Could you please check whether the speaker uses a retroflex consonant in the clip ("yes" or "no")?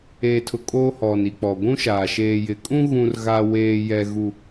no